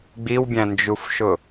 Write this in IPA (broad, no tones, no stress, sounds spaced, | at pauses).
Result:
ɡ͡b i w bʲ æ̃ n d͡ʒ u f ʃ ʊ